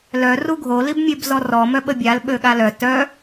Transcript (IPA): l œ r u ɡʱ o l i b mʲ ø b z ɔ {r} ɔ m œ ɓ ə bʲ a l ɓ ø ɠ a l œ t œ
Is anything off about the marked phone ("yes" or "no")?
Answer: no